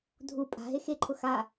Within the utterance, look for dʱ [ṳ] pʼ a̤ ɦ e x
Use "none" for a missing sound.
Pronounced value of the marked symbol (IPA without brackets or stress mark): u